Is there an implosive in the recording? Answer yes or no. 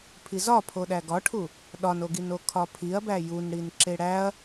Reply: yes